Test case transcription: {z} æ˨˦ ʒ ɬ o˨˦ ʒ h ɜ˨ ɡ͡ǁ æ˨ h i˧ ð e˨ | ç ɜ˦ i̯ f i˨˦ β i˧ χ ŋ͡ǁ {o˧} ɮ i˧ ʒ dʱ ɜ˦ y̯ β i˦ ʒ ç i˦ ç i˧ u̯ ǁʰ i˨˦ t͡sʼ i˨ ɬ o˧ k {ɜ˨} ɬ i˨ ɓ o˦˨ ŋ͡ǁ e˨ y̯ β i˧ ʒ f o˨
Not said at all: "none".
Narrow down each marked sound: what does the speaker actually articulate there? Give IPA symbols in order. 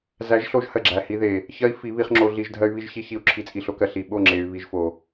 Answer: z, o˧, ɜ˨

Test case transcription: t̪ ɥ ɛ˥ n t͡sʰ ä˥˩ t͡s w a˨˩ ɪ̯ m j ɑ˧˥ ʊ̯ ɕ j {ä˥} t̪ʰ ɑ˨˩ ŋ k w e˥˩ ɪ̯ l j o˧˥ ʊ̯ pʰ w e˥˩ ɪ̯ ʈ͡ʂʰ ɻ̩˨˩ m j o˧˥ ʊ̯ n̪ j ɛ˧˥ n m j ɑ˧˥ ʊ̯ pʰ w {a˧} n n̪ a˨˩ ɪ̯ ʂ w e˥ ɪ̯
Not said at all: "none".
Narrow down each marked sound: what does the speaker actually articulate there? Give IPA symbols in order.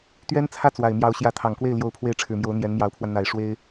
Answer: ä˧˥, a˧

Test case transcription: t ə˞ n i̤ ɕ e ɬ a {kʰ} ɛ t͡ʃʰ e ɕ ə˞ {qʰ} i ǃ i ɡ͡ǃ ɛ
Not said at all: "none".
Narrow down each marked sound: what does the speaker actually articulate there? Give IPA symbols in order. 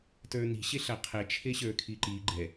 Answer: qʰ, kʰ

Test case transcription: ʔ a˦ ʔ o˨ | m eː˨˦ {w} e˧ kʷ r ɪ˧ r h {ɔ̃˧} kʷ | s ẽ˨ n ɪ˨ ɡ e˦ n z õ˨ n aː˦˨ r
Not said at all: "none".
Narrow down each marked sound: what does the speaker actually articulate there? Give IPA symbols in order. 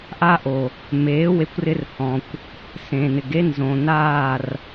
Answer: w, ɔ̃˨

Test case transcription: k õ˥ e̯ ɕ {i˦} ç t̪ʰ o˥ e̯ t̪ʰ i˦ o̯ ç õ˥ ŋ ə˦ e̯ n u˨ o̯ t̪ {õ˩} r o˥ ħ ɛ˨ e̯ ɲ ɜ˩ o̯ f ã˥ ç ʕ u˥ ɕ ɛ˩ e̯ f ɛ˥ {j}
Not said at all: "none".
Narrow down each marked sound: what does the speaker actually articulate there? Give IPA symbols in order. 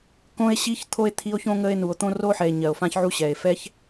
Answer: i˥, õ˥, ç

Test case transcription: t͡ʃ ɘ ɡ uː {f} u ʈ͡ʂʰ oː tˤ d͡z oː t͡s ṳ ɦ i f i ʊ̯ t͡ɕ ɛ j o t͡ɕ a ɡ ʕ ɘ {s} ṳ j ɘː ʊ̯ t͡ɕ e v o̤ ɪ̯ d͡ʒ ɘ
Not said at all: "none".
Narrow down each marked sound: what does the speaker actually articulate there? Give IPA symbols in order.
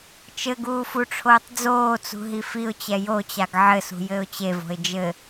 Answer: f, s

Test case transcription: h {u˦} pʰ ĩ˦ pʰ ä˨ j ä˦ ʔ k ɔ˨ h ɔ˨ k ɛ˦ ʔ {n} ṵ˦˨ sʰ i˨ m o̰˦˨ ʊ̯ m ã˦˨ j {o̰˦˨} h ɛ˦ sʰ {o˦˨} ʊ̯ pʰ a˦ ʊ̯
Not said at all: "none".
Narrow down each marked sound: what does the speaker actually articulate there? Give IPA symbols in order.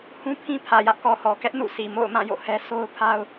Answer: ũ˦, n, o̰˦˨, o˦

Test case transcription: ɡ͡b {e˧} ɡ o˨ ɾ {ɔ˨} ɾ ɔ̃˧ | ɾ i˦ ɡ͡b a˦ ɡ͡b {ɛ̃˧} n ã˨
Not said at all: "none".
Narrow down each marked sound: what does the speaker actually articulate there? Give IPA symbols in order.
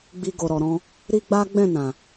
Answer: i˧, ɔ˨, ɛ̃˦˨

